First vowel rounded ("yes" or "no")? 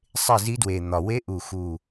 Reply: no